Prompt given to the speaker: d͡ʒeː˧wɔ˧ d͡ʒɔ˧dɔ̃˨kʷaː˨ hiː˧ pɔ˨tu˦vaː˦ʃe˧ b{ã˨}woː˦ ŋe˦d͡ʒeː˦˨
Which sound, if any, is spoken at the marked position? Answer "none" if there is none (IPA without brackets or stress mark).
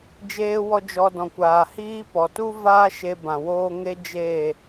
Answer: ã˨